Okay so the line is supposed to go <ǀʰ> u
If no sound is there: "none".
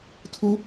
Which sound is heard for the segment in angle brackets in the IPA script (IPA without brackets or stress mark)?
tʰ